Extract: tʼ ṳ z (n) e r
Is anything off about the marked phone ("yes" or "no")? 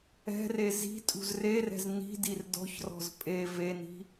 yes